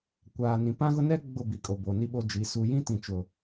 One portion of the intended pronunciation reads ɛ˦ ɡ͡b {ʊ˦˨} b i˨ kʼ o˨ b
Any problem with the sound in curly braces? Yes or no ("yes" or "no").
no